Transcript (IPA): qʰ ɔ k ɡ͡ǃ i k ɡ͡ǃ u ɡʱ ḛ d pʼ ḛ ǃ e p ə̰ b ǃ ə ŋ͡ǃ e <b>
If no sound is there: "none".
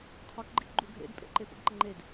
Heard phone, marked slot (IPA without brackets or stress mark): d